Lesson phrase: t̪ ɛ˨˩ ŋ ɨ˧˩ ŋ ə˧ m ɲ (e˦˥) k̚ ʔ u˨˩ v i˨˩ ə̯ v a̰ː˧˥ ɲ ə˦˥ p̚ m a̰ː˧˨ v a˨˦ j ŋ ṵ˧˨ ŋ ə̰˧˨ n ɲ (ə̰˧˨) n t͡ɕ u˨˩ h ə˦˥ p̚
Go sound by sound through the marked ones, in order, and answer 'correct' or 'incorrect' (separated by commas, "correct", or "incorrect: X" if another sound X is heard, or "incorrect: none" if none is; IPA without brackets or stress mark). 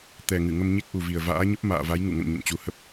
correct, correct